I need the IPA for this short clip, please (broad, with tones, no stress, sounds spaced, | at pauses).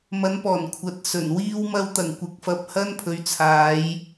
m ɐ˨˧ n p ɔː˨˩ n kʷʰ ɐ˨˥ t̚ s ɵ˨˩ n w iː˧ w m ɐ˧ w t̪ ɐ˨˩ ŋ kʷ ɪ˨˥ k̚ f ɐ˧ p̚ h ɐ˥ n pʰ ɵ˨˧ ɥ t͡sʰ aː˨˧ j